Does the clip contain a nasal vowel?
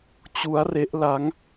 no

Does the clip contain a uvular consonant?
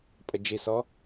no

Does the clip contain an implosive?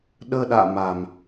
yes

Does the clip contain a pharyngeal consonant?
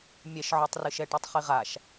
yes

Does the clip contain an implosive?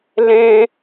no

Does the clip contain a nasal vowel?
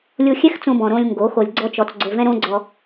yes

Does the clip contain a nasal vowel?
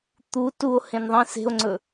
yes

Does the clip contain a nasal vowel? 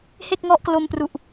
no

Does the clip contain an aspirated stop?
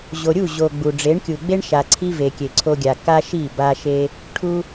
yes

